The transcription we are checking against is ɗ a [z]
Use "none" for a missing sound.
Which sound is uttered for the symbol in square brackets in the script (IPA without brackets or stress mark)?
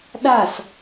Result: s